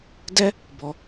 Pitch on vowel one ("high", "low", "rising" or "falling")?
high